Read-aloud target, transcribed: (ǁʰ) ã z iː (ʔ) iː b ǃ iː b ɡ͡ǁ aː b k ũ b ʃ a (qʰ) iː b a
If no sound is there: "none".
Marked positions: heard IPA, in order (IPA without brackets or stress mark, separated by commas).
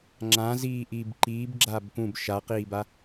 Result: ŋ͡ǁ, ʔ, q